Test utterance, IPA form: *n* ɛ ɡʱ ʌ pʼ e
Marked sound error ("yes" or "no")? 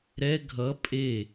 yes